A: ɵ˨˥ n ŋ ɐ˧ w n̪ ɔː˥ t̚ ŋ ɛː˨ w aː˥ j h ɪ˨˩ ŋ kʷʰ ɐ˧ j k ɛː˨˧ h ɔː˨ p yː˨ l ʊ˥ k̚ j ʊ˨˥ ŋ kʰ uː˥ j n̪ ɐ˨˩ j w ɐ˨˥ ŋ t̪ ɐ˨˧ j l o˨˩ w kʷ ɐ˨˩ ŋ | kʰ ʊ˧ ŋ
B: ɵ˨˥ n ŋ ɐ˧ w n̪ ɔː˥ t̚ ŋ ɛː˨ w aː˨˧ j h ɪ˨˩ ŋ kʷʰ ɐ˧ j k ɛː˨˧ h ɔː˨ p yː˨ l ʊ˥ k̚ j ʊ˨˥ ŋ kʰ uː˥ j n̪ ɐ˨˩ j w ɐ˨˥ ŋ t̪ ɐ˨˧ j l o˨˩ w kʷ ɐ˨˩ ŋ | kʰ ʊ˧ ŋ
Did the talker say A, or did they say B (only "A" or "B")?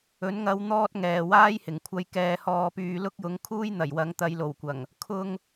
A